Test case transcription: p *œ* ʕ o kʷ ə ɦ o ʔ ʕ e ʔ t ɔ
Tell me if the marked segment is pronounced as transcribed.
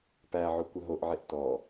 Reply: no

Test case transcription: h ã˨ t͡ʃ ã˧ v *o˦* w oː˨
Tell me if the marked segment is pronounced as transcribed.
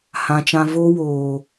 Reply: yes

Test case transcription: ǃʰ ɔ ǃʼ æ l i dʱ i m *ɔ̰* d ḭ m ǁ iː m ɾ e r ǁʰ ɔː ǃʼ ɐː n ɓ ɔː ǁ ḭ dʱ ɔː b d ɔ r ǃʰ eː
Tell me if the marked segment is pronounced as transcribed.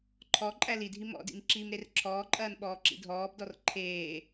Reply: yes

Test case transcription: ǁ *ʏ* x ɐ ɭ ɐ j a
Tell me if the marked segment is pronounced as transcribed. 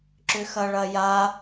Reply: yes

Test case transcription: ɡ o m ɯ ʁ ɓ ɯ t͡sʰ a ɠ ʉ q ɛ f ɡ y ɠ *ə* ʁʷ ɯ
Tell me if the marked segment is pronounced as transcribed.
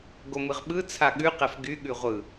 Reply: no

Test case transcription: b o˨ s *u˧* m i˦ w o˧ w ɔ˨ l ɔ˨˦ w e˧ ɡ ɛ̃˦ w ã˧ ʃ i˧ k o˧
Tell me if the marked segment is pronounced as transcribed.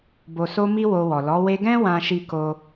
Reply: no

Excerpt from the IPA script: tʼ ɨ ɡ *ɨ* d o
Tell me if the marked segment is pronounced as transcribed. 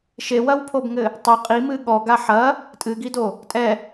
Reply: no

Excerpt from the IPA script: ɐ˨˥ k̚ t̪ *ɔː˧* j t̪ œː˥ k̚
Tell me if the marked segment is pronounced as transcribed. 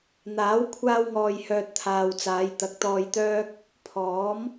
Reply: yes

